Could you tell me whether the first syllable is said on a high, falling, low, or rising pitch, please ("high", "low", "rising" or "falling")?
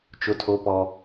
high